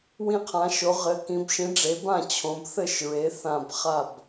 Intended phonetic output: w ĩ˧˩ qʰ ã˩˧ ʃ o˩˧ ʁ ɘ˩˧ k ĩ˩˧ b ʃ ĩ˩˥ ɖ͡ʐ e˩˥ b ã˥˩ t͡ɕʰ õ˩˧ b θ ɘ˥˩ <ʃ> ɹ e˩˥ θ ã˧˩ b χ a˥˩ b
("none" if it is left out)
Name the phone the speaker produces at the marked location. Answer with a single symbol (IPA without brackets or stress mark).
ʃ